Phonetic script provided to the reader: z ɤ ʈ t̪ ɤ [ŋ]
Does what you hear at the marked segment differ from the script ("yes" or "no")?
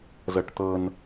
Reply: yes